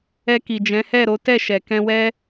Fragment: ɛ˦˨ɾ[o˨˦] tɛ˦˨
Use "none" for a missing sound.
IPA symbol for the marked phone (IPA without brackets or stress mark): o˨˦